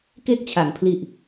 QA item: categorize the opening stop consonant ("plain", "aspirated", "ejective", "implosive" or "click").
plain